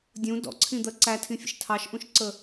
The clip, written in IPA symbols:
dʲ ũ d ɔ̰ ǀʰ ĩ d̪ ɜ ǀ æ tʰ ĩ fʲ ə̰ ʃ tʰ ɑ ʃ ʔ ũ ʃ ǀ ə

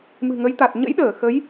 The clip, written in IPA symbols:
m ɨ̤˨˩ ŋ ə˨˦ j t̪ a˨˩ t̚ ɲ ə̰˧˥ j ɗ əː˧˩ x ə˨˦ j

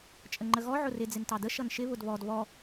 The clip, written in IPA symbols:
t͡ʃʼ ə ŋ͡ǃ ə ɣ ɔ ʕ ʊ r ɪ d͡z ɪ n t ɑ d ə ʃ ʌ n ʃ ɪ β ʊ d β ɔ d β ɔ

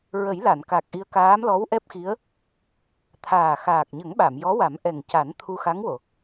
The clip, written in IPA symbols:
ɹ ə˨˩˦ j l a˨˩˨ n k a˨˩ k̚ ʔ i˧ ə̯ k aː˧˥ m l ɔ˧˥ w ʔ ɛ˦˥ p̚ x i˧˥ ə̯ | t̪ʰ aː˨˩ x aː˨˩ k̚ ɲ ə˨˩˦ ŋ ɓ a˨˩˨ m j ɔ˧˥ w a˨˩˦ m ʔ ɛ˨˩ ŋ c a˨˩˦ n t̪ʰ u˧ x a˧˥ ŋ w o˨˩˨

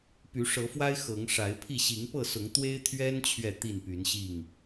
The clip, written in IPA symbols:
p y˨˦ ʂ ɤ˨˦ f w a˦ ɪ̯ x ɤ˨˦ ŋ ʂ a˨˦ ɪ̯ pʰ i˥˨ ɕ i˨˦ ŋ p ɤ˥˨ s ʊ˨˦ ŋ t̪ w e˦ ɪ̯ t̪ʰ ɥ ɛ˦ n t͡ɕʰ ɥ ɛ˥˨ t̪ i˥˨ n p y˨˦ n ɕ i˥˨ ŋ

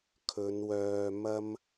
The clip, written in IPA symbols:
kʰ ɵ˨˧ n w œː˧ m ɐ˥ m

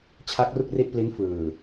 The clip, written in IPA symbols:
t͡ɕʰ a˦˥ k̚ r u˥˩ k̚ r i˥˩ ʔ p l i˦˥ n f ɯː˨˩

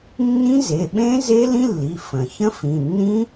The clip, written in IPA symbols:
nː ĩ˦˥ z e˩˧˩ ɓ ẽ˦˥ z e˦˥ l ĩ˦˥ lː i˩˧˩ f ə̃˩ ç ə̃˦˥ f ĩ˩˧˩ nː ĩ˦˥

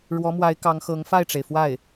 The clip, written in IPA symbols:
ɻ w ɔ˧˥ m w a˧˥ ɪ̯ k ɑ˧˥ ŋ x ɤ˧˥ ŋ f a˥˩ ɪ̯ ʈ͡ʂ e˩ ɪ̯ f w a˥˩ ɪ̯

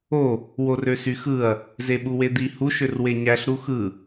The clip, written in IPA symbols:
o | w o r ø s y x ɯ ɐ̯ | z e ɓ u w e d̪ i h u ʃ ø r w e ɲ æ ɬ ɾ u x ɯ

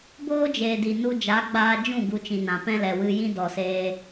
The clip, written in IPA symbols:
b oː˦ d͡ʒ eː˨ d i˨ n u˧ d͡ʒ a˨˦ ɡ͡b aː˧ d͡ʒ ũ˦˨ ɡ u˧ t͡ʃ ĩ˨ n ã˨ p ɛ̃˦ l ɛ˨ w ɨ˧ j ĩ˦ d ɔ˨ s eː˧

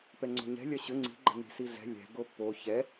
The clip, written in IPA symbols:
p ɛ ŋ͡ǀ o̤ ɲ ɛ̤ lʲ ɐ ɕ ʏ ŋ͡ǀ i̤ ɡ͡ǃ ə̤ n i̤ s i ɮ ɛ̤ lʲ ɛ̤ ɡ o pː o ç ɛ

